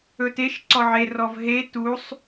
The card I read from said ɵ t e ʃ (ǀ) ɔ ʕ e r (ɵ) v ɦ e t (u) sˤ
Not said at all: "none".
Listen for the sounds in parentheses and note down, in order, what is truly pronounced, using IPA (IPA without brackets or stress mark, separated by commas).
ǀ, ɔ, u